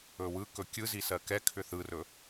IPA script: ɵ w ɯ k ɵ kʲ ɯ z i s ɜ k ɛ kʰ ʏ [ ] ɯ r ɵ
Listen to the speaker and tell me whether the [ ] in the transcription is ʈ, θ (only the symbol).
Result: θ